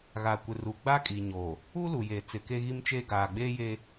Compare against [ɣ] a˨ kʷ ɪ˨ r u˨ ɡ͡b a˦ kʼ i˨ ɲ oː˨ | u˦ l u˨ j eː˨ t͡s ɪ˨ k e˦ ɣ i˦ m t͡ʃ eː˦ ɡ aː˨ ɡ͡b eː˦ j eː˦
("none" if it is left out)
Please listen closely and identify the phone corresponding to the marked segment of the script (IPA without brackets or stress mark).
ɣ